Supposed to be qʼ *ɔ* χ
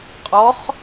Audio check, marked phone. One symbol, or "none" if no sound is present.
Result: ɔ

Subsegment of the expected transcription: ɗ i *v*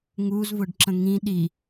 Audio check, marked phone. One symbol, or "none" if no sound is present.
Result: none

